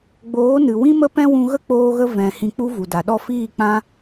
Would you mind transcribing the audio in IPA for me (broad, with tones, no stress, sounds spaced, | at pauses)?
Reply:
ɡ͡b oː˨˦ n ɨ˨ w ĩ˦ m ə˦ p ɛ̃˦ w ũ˧ ɣ ə˦ k͡p oː˧ ɣ ə˧ v ɛ̃˨ h ĩ˧ k͡p u˦ v u˨ d a˨ ɗ ɔ˦˨ f iː˦˨ k͡p ã˦